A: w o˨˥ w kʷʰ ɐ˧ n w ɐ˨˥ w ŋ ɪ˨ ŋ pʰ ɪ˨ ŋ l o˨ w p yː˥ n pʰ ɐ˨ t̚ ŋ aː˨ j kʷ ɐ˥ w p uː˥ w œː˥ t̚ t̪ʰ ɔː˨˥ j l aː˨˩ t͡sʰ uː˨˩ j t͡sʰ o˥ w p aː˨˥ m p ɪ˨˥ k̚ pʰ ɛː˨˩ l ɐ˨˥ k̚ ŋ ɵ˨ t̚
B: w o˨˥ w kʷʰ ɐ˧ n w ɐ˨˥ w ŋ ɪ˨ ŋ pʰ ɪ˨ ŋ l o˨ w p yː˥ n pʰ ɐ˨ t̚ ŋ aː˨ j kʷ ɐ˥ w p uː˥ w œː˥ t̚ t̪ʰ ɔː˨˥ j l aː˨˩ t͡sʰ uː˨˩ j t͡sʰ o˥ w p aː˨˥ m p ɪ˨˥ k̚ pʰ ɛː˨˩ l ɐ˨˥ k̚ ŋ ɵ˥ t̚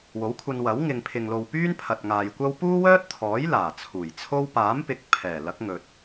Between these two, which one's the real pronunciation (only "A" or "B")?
A